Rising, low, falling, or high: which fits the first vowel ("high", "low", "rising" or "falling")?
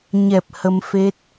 low